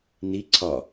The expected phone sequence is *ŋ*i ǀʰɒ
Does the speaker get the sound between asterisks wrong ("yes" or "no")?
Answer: yes